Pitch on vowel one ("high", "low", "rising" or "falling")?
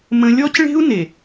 high